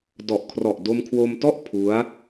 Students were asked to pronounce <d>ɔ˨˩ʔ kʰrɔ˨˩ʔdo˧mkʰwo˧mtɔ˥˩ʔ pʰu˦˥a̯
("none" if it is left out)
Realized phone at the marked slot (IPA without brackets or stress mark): d